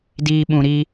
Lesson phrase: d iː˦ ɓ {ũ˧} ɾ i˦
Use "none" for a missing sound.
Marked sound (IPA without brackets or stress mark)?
ũ˧